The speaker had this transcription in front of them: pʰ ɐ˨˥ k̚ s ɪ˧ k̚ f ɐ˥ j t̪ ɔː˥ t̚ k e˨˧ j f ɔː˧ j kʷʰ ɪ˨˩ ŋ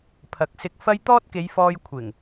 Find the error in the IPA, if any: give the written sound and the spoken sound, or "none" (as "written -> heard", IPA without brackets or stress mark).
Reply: none